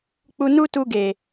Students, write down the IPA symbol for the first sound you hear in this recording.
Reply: k͡p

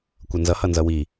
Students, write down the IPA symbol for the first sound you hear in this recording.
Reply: kʷ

